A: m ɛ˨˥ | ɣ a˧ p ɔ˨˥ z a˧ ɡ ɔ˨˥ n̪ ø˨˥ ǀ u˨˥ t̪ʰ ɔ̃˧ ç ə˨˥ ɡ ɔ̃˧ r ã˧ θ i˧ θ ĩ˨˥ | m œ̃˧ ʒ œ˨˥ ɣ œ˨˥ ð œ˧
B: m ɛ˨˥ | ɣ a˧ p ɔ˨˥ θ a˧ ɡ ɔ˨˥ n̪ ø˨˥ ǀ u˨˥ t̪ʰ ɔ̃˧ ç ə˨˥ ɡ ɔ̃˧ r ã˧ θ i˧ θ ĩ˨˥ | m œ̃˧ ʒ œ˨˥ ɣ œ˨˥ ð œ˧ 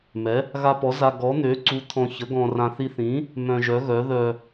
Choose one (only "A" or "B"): A